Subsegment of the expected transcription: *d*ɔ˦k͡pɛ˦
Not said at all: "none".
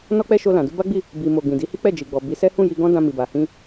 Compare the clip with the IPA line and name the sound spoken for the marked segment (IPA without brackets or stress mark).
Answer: n